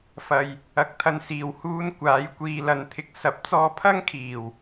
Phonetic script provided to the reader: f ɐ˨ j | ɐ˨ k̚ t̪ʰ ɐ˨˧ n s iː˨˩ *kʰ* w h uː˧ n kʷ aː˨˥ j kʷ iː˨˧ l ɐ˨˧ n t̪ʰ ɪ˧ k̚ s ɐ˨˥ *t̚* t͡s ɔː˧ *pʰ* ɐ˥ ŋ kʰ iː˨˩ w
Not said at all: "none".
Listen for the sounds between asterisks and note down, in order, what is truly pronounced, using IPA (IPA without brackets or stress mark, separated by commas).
none, p̚, pʰ